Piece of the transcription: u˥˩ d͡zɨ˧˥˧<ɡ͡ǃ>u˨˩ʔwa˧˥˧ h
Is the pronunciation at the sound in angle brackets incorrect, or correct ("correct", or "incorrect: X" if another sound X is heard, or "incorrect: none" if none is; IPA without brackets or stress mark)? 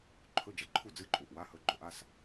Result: incorrect: ǃʼ